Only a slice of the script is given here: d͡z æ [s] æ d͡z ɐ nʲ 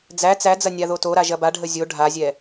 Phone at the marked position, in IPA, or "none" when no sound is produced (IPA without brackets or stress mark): t͡s